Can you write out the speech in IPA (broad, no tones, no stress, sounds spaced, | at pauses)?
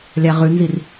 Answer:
lʲ a ʁ ʉ n z i r